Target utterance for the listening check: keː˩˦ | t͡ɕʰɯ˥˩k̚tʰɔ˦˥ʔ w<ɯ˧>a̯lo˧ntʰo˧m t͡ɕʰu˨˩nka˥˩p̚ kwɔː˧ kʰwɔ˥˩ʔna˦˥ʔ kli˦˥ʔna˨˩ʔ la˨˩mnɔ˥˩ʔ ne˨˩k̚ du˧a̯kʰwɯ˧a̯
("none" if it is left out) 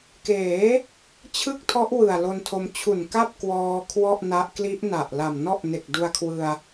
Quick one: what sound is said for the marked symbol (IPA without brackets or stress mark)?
ɯ˨˩